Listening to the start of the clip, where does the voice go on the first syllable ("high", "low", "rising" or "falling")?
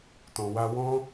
low